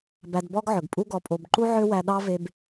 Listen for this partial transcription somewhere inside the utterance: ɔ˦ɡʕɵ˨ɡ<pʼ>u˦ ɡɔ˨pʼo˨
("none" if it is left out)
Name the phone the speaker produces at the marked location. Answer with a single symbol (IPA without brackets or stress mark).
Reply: pʼ